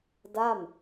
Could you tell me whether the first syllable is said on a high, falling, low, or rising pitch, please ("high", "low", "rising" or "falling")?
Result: falling